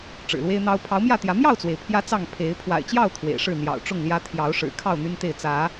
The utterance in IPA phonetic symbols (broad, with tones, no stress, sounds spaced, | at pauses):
ʈ͡ʂ ɻ̩˨˩ l w e˦ ɪ̯ n̪ ɑ˦ ʊ̯ pʰ ɑ˨˦ ʊ̯ m j ä˥˨ t̪ j ä˨˦ m j ɑ˥˨ ʊ̯ t͡s w e˩ ɪ̯ pʰ j ä˦ t͡s ɑ˥˨ ŋ pʰ e˨˦ ɪ̯ pʰ w a̰˨˩ ɪ̯ t͡ɕ j ɑ˥˨ ʊ̯ t̪ʰ w ḛ˨˩ ɪ̯ ʂ ɻ̩˥˨ n̪ j ɑ̰˨˩ ʊ̯ ʈ͡ʂ ʊ˥˨ ŋ l j ä˦ t̪ʰ j ɑ˨˦ ʊ̯ ʂ ɻ̩˨˩ kʰ ɑ˥˨ ʊ̯ n̪ y˦ n t̪ e˥˨ ɪ̯ t͡s ä˨˦